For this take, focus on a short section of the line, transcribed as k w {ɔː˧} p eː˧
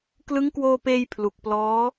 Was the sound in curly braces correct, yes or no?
no